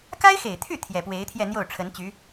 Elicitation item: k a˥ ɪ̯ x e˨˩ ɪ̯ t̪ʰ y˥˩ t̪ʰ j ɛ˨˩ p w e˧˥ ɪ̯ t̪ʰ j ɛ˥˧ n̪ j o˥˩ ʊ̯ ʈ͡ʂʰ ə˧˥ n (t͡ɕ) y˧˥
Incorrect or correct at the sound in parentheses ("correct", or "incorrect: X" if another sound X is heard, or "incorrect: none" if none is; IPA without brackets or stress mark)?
correct